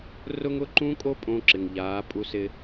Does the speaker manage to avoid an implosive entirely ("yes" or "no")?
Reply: yes